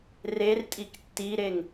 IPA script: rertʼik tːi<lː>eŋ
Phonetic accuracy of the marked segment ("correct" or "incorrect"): incorrect